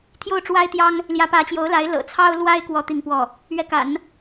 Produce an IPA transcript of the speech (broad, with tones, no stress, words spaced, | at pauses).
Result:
t̪ʰjo˥˩ʊ̯ʈ͡ʂwa˥ɪ̯t̪jɑ˥ŋ | ljä˧˥pä˧˥t͡ɕjo˧˥ʊ̯la˧˥ɪ̯ lɤ̰˨˩ t͡sʰɑ˥ʊ̯lwa˥ɪ̯ kwɔ˥t̪i˥˧ŋpwɔ˥˩ | ɥɛ˥˩ka̰˨˩˦n